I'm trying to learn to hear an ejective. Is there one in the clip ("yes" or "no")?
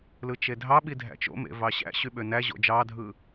no